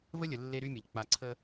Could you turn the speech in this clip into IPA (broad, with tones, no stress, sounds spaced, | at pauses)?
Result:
v ə˦ lʲ ə˨ lː e˦ ɾ y˦ mʲ ɐ˨ ʎ k͡p a˨ ǀʰ ə˦